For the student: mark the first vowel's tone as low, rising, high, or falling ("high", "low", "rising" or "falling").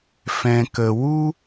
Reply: low